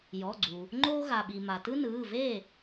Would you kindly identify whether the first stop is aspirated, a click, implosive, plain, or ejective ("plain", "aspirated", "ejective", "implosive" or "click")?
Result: click